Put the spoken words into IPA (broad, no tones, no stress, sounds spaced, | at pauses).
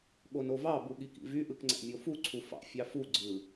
ɠ o n o v ɑ b u ɠ i k ḭ v y ʔ ɯ k ŋ͡ǀ æ̰ mʲ o f u ǀʰ u f ɑ̰ fʲ ɑ f u ɡ͡ǀ ɯ